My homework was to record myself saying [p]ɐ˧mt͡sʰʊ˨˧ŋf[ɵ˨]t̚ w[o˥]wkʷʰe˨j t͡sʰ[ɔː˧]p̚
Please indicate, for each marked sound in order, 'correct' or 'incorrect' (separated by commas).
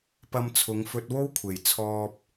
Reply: correct, incorrect, correct, correct